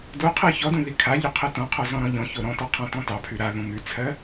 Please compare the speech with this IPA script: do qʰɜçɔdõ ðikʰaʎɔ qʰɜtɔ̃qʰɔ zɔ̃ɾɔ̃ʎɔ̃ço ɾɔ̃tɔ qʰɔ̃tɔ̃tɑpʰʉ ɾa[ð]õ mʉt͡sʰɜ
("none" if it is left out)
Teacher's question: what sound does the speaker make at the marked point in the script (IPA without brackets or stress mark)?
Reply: ð